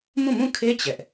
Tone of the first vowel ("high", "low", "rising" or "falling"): falling